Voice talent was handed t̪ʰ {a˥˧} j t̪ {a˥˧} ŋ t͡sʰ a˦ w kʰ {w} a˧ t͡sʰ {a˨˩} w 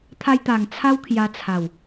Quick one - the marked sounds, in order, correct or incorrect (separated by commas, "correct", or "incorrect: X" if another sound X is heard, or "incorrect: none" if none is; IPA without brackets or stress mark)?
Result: incorrect: a˧, incorrect: a˨˩, incorrect: j, correct